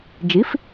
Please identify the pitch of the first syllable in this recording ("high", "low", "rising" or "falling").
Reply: rising